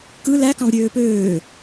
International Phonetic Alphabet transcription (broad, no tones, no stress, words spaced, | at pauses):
kɯ læ kɑ̃vɾʲøːpøː